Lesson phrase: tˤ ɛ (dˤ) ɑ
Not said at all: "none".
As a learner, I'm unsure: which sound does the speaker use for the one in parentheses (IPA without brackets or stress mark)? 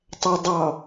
dˤ